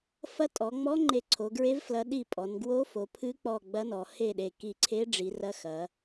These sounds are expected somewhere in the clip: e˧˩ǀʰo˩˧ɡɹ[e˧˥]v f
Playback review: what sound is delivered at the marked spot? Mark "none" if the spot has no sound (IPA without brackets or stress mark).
e˧˥